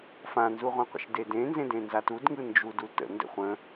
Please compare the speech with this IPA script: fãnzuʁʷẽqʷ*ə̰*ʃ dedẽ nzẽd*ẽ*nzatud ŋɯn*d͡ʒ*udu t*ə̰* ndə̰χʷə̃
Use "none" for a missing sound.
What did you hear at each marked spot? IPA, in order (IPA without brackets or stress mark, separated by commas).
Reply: ə̰, ẽ, d͡ʒ, ə̰